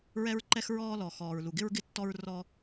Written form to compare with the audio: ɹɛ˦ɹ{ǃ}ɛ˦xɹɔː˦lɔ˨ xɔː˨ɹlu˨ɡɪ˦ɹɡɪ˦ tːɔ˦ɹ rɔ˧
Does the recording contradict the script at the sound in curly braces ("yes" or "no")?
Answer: no